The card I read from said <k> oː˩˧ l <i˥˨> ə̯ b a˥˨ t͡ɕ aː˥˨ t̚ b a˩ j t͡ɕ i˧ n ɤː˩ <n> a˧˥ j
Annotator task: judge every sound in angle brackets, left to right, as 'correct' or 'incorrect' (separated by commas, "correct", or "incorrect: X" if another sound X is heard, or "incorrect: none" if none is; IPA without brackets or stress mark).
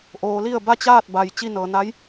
incorrect: ʔ, correct, correct